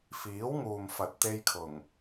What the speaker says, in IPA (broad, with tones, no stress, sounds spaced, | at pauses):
f iː˨˥ w ŋ uː˨ m f ɐ˨ t̚ t̪ e˧ j kʰ ʊ˨˩ ŋ